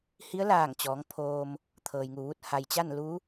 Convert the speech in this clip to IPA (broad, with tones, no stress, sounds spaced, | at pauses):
h i˧˥ ə̯ l aː˧˩ ŋ t͡ɕ ɔː˩˧ ŋ pʰ oː˧ m | t̪ʰ ɤː˩ j ŋ u˩ ʋ u˥˨ t̚ h a˩ j t͡ɕ a˥˨ n l u˧˥